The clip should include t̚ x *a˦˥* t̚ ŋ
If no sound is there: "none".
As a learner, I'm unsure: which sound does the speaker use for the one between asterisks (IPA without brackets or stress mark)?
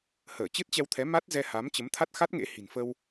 a˦˥